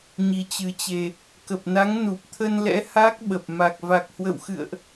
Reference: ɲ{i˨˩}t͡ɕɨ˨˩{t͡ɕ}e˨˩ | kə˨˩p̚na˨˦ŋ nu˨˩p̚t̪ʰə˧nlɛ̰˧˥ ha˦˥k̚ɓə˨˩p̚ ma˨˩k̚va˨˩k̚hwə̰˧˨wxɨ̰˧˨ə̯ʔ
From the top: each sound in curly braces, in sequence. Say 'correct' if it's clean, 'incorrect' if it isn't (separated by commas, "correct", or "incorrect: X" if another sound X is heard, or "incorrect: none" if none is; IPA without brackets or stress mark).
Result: correct, correct